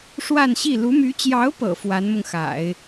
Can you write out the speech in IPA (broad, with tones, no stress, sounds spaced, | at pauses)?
ʂ w a˥˧ n ɕ i˥˩ l u˧˥ m y˧˥ t͡ɕ j ɑ˧˥ ʊ̯ p ɤ̰˨˩ f w a˧˥ n m ʊ˧ ŋ x a̰˨˩˦ ɪ̯